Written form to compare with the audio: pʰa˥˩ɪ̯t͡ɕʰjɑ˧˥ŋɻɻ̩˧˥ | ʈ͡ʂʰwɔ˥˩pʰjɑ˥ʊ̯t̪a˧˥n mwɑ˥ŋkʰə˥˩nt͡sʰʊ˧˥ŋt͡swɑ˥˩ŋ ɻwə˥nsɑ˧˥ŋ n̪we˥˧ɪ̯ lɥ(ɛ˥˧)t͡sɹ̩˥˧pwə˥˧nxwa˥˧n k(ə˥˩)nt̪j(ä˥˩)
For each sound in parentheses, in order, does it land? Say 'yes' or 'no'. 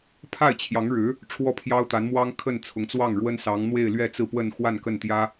yes, yes, no

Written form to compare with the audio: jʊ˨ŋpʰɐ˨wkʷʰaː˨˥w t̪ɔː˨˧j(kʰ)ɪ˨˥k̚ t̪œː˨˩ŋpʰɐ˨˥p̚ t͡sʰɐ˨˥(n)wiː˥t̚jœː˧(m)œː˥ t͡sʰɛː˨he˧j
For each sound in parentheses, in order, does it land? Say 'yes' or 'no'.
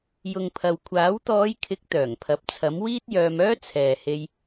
yes, no, yes

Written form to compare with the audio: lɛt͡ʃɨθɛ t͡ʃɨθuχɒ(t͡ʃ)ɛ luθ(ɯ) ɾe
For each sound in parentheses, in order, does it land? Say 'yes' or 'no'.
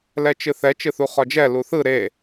no, yes

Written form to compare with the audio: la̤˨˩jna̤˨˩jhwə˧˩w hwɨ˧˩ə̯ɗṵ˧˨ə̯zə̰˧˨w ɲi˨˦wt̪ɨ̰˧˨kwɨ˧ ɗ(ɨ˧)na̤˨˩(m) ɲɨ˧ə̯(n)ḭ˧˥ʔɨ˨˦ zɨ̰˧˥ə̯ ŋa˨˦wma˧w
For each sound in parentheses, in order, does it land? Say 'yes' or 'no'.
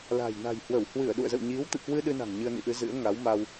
yes, no, yes

